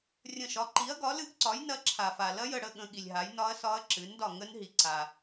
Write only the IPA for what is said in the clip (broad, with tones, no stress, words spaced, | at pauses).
rʲə̃˦˨ʃɒ˨˥ ǃi˨˥ɐ̯ɡɒ˨˥lɨ˦˥ɡǀɒ˨˥j nɐ˦˥ǁʰa˨fa˨ lɐ˦˥jə˦˨ɽə˦˨ ɠə̃˦˥ɠi˨lʲɦa˨˥j nɒ˦˥ɐ̯sɒ˦˥ɐ̯ǁɨ˨˥ndɒ˦˨ ŋə˦˥nɦi˨ǀa˨